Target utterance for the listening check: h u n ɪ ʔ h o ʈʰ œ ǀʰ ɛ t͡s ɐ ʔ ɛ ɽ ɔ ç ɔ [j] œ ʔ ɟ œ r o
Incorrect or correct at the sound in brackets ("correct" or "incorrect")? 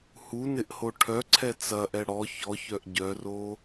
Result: incorrect